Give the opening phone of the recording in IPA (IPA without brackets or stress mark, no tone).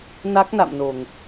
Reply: n